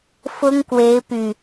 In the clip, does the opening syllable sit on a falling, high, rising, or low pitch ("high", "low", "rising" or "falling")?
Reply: high